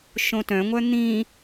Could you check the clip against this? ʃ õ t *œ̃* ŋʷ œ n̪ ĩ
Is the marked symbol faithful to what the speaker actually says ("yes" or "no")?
yes